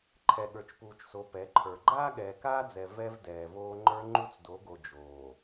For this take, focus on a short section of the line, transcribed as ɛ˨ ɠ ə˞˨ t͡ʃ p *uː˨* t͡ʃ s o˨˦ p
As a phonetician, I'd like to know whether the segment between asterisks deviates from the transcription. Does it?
no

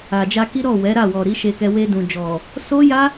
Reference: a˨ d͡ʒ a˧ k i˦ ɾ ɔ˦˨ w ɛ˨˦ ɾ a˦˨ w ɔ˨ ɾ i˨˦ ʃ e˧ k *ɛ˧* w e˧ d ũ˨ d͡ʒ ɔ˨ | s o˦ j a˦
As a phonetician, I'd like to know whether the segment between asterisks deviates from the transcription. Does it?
no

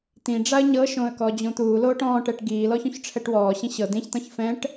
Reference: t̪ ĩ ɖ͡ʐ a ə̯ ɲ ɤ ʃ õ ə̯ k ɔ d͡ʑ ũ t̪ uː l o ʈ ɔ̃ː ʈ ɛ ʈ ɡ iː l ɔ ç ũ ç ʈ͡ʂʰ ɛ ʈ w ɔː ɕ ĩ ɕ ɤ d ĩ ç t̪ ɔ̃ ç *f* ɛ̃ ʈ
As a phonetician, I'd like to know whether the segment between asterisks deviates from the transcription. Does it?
no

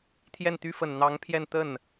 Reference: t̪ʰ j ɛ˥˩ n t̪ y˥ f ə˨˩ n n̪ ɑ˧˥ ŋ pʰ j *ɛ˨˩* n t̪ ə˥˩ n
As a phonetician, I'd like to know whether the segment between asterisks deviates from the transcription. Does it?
yes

